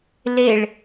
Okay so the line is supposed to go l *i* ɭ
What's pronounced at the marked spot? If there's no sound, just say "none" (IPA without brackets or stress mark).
e